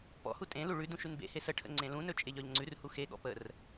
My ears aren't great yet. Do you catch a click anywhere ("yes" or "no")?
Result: yes